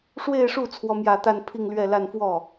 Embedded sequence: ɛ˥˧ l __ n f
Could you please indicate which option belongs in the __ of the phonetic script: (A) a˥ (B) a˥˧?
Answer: B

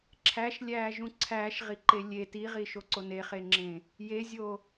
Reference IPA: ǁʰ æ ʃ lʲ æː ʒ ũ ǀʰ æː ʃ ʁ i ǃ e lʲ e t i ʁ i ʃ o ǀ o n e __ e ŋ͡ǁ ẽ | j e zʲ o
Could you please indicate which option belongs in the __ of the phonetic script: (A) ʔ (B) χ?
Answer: B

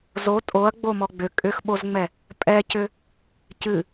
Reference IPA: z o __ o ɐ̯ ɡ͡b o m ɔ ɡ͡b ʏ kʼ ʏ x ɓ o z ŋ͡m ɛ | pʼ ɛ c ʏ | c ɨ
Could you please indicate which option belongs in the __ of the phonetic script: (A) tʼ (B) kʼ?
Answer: A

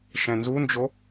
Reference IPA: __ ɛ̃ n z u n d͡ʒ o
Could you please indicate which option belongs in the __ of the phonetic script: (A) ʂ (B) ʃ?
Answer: B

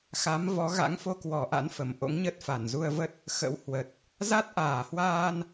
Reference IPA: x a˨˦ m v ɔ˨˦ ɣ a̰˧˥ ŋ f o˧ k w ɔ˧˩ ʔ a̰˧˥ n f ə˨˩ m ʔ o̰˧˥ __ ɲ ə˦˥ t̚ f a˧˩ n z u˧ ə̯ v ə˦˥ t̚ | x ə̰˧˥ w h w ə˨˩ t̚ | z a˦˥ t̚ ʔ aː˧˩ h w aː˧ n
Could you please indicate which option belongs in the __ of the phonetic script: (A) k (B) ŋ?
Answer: B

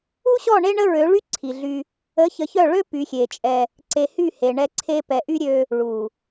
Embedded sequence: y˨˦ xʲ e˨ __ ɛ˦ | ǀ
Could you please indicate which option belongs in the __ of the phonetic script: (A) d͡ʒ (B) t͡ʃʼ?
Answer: B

